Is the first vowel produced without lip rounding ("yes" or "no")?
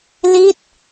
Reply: yes